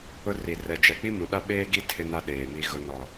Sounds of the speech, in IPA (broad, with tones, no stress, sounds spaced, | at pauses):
ʊ˦ r i˨ r ɛ˨ d͡ʒ ɛ˨ k͡p i˦ m ũ˨ ɗ a˦ ɓ eː˦ ɡ i˦ tʰ ɪ˦ n a˦ ɗ eː˨ m i˦ ɣ ʊ˦ n ɔ˨